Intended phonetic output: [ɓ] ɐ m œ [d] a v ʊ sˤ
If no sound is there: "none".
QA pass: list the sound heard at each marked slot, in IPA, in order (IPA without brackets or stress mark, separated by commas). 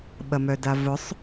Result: ɓ, d